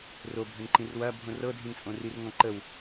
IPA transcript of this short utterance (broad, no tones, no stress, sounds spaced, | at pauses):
r o bʱ ə n ǃ ĩ r w ɐ bʱ õ r ɤ dʱ ĩ n t͡sʼ õ r i r ŋ ɔ̃ ǃ ə w